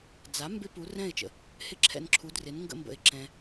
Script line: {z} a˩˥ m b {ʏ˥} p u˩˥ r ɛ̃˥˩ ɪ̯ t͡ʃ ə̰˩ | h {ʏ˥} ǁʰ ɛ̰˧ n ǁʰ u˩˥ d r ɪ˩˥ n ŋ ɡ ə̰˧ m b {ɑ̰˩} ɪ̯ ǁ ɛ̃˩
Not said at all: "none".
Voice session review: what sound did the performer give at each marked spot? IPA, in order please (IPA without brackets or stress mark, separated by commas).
d͡z, ɪ˥, ɪ˥, ə̰˩